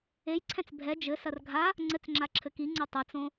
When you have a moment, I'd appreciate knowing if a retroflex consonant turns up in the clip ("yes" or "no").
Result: no